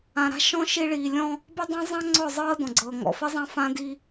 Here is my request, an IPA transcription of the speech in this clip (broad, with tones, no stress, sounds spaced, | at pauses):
ã˨ ɾ a̤˦ ʃ ɔ̃˦ ʃ i˦ ɭ iː˨ lʲ ɔ̃˦ | b i˦ dˤ ã˦ zˤ ã˦ ŋ͡ǀ ɔ˦˨ zˤ ɤː˦ d ɔ̃˨ ɡ͡ǀ ɤː˨ ŋ ɔ̰˨ f i˦ zˤ ã˦ f ã˦ d i˦